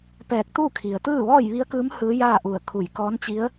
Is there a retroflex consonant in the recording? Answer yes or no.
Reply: no